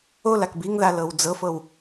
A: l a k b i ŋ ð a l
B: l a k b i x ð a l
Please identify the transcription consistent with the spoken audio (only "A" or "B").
A